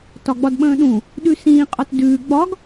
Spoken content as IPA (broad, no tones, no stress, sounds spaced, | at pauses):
t ɒ ɡ͡b ɒ d ɓ ə̃ː ɗ ũ | ɗ ʉ s ĩː qʼ ɒ t d ʉː ɡ͡b ɒ ɡ